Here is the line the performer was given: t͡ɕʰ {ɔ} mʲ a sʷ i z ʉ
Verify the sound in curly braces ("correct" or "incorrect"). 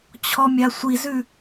correct